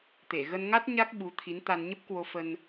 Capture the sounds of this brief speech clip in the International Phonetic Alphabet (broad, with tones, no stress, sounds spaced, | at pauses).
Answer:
t̪ e˧˩ ɣ ə˧ n ŋ a˦˥ t̚ ɲ a˦˥ k̚ ɓ u˨˦ t̪ʰ i˨˦ n t̪ a˧ n ɲ ə˦˥ p̚ k w o˧ f ə˧ n